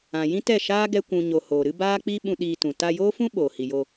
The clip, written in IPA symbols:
ã˨ j ĩ˦ t ɛ˦˨ ʃ aː˦ ɡ ɛ˦ kʷ ũ˨ ɲ o˨ h oː˨ ɾ ɨ˦ b aː˦ k͡p i˦ ɓ ũ˧ ɗ iː˧ t ũ˨ t a˧ j oː˦ f ũ˦ ɓ oː˨ h i˨ j o˧

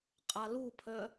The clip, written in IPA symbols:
qʼ a l u pʰ œ

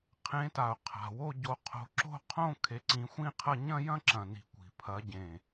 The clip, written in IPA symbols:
qʰ ẽ˨˦ t a˨˩ ʊ̯ qʰ a̤˨˩ w o˥˧ ɟ o˨˦ qʰ o̤˨˦ ǁ o̤˥˧ qʰ õ˥˧ kʰ e˨˦ ǀ ĩ˨˦ xʷ ĩ˥˧ qʰ ɐ˥˧ ɲ ɐ̃˥˧ j ɐ̃˥˧ ǁ ɐ̃˨˩ n i̤˨˦ kʷ i̤˨˩ pʰ ɐ˨˦ ɟ ẽ˨˩

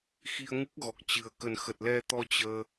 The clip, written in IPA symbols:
x i˧ ə̯ ŋ ɨ˦˥ k̚ ɣ ɔ˨˩ k̚ t͡ɕ ɨ˨˩ ə̯ k ə˨˩ n x ə˨˩ t̚ l ɛ˧ t̪ ɔ˧ t͡ɕ əː˧

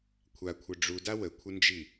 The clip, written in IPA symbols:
kʷʰ a kʷʰ ɘ ɖ͡ʐ u d a w ə kʷʰ ɘ n d͡ʒ i

